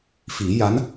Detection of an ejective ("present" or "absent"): absent